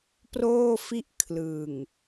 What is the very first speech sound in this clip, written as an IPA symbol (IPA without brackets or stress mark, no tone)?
p